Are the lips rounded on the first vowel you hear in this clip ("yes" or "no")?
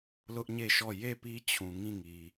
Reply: yes